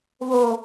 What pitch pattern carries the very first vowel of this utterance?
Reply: high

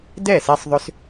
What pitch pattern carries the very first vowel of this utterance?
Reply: falling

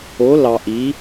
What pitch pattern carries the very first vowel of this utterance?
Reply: rising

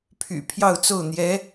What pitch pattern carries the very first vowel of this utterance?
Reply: low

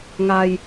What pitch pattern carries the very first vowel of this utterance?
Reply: low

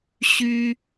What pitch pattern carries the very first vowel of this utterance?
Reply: high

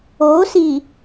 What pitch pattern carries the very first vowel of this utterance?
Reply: rising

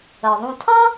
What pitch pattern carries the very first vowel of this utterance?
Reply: low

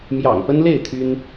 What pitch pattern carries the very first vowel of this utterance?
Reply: low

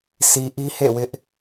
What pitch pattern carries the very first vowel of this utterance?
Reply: low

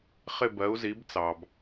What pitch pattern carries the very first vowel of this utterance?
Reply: falling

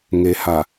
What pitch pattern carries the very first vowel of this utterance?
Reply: low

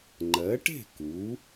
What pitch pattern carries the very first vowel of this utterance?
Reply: rising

